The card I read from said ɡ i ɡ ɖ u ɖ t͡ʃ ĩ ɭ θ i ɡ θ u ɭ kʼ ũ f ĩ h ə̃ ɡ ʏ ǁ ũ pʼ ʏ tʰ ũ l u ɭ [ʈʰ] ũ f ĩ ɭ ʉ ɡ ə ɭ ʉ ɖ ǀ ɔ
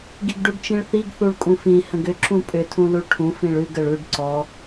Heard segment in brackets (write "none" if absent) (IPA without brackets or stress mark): ʈʰ